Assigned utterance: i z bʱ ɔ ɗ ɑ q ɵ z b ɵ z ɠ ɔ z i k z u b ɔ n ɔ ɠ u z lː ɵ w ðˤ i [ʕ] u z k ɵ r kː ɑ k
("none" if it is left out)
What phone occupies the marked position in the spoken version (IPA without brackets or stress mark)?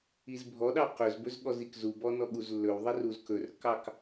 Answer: r